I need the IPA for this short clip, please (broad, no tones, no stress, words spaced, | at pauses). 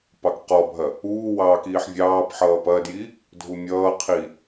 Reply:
pɑkqɔbʱɐ | uː wɑːkiːħvʲɑːpħʌː pɐdji | dʱumʲʌːqʰi